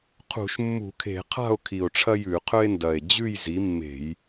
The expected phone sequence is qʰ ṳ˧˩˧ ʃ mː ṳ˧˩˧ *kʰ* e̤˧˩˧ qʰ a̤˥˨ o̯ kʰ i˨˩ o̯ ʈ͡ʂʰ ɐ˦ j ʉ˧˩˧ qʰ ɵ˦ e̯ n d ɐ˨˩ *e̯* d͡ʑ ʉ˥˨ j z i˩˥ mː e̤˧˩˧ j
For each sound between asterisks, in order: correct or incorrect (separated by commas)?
correct, correct